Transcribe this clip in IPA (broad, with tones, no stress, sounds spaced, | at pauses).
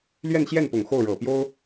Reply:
l ɥ ɛ˥˧ n ɕ j ɛ˥˩ n p ʊ˨˩ ŋ x o˥˩ ʊ̯ ɻ ɤ˨˩ p j o˥ ʊ̯